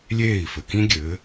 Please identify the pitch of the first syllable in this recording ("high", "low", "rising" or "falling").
falling